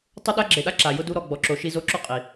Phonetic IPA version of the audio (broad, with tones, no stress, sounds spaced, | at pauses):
tˤ ʊ˦ ɗ a˦ ɡ͡ǁ e˨ ɗ a˦ ǁ a˩ j ʊ˥ d u˦ ɾ ɔ˨ ɡ͡b ɔ˨ ǁ o˨ ʃ i˥ z o˥ ǁ o˥ qʼ i˩